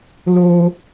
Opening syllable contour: high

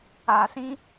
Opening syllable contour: low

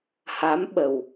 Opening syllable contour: rising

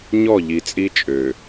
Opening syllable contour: falling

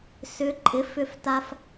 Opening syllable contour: rising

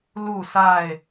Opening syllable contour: falling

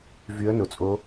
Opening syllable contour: rising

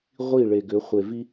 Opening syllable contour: falling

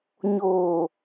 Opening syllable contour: low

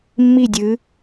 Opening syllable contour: falling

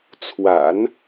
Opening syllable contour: low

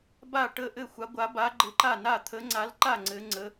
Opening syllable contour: falling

